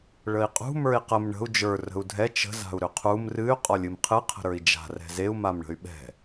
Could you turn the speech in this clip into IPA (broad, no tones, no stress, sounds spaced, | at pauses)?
ɭ ə i̯ qʼ ṳ m ə˞ i̯ q ə m ɳ ə̤ u̯ d͡ʒ ə˞ r ə̤ u̯ dʱ ɛ t͡ʃ ə̤ z a̤ u̯ ɾ ʏ qʰ u m r ɨ y̯ qʼ ɒ lʲ ɨ m qʰ ɨ qʰ ə̤ ɾ ə˞ i̯ d͡ʒ a̤ r ɛ̤ z e u̯ m a m ɳ ə̤ y̯ ɓ ɛ̤